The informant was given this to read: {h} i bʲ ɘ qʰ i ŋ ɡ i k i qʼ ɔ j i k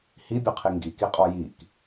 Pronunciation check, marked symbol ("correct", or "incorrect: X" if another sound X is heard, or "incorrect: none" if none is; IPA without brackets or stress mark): correct